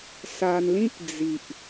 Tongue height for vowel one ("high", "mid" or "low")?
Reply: low